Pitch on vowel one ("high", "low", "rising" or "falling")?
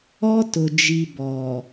high